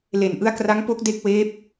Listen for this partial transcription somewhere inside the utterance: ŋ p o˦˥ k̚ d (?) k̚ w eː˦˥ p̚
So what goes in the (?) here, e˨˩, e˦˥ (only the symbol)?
e˦˥